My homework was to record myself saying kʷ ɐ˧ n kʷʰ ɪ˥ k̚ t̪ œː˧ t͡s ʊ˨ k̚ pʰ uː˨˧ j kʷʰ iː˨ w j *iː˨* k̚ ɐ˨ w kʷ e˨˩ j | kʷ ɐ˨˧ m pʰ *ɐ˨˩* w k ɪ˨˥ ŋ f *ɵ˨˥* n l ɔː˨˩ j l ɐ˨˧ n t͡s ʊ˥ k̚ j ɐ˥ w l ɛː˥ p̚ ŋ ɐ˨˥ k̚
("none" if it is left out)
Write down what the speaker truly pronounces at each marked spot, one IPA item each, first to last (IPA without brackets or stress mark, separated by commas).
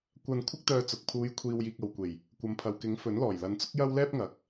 iː˨, ɐ˨, ɵ˨˥